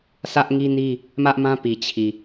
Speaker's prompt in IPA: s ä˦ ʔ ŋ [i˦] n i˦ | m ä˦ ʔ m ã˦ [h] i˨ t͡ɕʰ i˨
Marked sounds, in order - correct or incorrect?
correct, incorrect: p

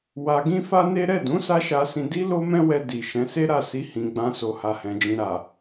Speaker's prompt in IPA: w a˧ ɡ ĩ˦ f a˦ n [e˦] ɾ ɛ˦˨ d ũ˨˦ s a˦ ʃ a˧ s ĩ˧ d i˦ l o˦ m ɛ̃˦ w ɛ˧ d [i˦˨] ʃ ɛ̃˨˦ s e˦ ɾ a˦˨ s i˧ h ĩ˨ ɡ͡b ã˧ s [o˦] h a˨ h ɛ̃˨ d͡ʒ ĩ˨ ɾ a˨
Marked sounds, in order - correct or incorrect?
correct, incorrect: i˨, incorrect: o˨

